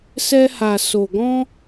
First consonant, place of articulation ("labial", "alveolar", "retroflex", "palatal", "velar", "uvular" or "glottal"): alveolar